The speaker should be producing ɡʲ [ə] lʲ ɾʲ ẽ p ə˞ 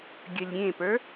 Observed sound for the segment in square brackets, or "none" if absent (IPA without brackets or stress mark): ə